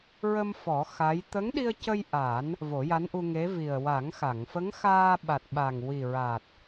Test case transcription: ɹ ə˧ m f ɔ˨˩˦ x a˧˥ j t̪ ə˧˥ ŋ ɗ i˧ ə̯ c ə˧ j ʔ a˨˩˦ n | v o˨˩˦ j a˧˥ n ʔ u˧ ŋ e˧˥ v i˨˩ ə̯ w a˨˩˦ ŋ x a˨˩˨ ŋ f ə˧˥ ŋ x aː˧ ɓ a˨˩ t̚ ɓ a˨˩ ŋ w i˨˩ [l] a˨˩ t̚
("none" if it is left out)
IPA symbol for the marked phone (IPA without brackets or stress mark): ɹ